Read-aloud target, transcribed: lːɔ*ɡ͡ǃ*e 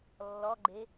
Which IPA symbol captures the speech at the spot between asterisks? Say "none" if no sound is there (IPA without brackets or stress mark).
ɡ͡ǃ